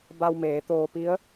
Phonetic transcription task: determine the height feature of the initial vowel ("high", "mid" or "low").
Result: low